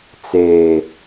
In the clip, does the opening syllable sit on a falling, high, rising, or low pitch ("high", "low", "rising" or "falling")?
low